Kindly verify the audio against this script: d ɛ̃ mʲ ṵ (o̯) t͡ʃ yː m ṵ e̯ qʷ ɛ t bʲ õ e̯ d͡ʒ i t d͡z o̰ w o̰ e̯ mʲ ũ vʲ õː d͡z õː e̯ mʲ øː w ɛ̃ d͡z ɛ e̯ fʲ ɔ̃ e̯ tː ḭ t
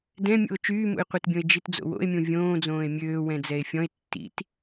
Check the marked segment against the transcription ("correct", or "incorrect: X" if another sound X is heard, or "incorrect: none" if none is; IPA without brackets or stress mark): correct